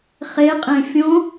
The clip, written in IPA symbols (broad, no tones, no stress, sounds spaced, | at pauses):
χ e qʼ ẽ fʲ õ